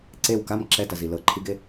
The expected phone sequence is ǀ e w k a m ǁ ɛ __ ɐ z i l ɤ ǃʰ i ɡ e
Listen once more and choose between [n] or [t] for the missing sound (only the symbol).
t